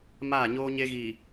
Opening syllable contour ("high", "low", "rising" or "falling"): falling